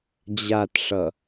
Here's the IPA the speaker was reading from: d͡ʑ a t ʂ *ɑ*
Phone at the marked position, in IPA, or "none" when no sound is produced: ʌ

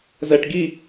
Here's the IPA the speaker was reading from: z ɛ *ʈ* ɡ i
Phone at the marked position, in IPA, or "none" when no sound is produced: ʈ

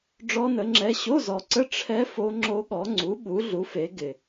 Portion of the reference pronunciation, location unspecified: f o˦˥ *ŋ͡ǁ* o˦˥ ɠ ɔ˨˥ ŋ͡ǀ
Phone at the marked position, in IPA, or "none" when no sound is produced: ŋ͡ǁ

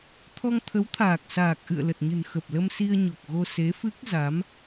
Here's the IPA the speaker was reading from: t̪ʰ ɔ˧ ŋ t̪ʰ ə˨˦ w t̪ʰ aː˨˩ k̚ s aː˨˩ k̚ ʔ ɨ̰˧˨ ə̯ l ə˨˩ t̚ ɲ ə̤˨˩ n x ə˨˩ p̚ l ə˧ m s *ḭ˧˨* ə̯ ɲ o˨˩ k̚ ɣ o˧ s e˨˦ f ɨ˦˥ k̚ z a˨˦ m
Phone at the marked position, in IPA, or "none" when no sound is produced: i˧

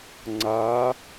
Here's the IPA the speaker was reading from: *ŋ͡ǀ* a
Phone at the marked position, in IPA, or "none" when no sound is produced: ŋ͡ǀ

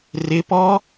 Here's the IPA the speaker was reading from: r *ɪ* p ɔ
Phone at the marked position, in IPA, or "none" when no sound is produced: ɪ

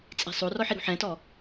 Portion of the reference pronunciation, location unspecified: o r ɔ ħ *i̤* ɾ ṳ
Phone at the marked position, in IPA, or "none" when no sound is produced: i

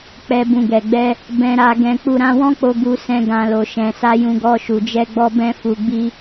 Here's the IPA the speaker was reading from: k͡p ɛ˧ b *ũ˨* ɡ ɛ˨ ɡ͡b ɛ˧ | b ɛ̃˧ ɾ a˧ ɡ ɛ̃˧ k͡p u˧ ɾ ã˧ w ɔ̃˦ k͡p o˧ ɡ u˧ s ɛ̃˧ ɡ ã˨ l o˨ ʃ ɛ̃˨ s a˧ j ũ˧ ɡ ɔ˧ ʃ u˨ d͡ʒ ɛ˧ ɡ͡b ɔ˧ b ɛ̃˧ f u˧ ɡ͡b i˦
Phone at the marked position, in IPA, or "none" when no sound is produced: ũ˨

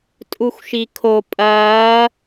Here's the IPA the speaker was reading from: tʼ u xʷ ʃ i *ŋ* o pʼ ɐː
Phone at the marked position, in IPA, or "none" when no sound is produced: kʰ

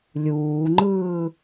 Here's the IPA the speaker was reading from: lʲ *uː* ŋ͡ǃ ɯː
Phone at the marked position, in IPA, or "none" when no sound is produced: uː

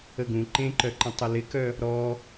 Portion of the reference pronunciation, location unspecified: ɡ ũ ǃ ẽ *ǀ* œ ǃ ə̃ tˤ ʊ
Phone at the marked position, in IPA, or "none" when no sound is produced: ǃ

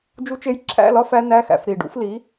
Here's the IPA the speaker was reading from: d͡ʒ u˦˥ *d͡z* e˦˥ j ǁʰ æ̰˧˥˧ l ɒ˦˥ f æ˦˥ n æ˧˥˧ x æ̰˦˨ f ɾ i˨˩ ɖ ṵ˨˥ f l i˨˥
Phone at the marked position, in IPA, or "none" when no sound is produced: t͡ʃ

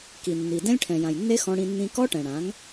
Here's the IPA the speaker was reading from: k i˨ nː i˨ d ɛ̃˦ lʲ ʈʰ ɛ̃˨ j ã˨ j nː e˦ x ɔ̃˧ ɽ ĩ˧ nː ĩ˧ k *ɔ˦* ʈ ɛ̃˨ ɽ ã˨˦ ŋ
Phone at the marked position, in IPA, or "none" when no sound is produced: ɔ˦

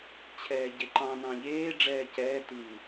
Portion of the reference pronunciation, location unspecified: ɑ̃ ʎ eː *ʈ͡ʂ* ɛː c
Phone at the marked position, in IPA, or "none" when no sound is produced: ɖ͡ʐ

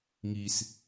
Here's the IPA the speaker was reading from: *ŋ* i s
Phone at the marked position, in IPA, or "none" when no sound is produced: ŋ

